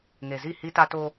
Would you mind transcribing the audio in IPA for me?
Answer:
ŋ e˨ z i˦˨ h i˦ t a˦ t o˦

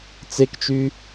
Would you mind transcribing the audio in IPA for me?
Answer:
t͡s e k t͡ʃ y

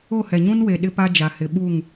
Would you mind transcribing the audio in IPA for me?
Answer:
o˦˨ h ɛ˨ ɲ ũ˦ n w e˨ ɗ ɪ˦ p a˦ d͡ʒ a˨ h ɪ˨ ɓ u˦˨ ŋ

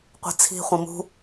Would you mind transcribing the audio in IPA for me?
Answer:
qʷ i̤ t͡sʰ i̤ χʷ ɐ̃ m ṳ

